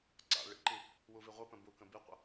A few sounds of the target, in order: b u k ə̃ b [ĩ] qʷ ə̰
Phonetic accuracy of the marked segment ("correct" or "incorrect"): incorrect